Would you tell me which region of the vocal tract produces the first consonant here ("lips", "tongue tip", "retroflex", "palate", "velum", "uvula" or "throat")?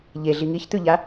palate